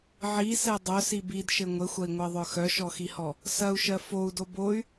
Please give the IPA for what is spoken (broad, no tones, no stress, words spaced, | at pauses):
ʕisɛ dˤœsi bidʃɘ ŋʷɘxʷɐi̯ŋʷɜðˤœ xœʃɔxihɔ | sɐu̯ʃɜ fou̯do boy̯